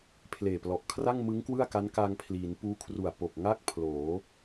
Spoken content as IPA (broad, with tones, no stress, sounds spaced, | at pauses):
pʰ l eː˨˩ p l ɔ˨˩ ʔ kʰ r a˥˩ ŋ m ɯ˦˥ ŋ k w ɯ˥˩ a̯ k a˦˥ n k a˧ ŋ pʰ l iː˩˦ n p uː˦˥ kʰ r u˨˩ a̯ p o˨˩ k̚ ŋ a˥˩ k̚ pʰ l oː˩˦